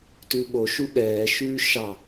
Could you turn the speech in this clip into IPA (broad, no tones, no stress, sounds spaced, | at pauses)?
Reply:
t ʉː ɓ o ʃ u ɠ ɛː ʃ ʉː ʃ ɑ